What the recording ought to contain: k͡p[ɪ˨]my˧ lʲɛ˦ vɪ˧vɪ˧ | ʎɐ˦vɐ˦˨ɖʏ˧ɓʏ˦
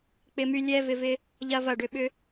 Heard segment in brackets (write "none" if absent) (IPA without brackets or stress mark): ɪ˧